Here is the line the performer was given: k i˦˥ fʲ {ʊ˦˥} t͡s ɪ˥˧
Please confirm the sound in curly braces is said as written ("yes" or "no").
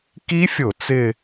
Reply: no